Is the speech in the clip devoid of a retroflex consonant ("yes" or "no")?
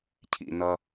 yes